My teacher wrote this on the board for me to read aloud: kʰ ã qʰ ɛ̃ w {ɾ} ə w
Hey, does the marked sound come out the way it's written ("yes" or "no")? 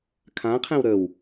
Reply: yes